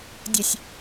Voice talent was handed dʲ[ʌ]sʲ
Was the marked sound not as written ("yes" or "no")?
yes